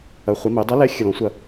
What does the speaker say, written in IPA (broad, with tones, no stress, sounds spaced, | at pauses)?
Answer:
ɐ˩˧ χʷ ɐ˩˧ m e˩˧ dˤ a˧˥ l ɛ˧˥ xʲ ə˨˩ l ɔ̃˩˧ sʷ ɐ˨˩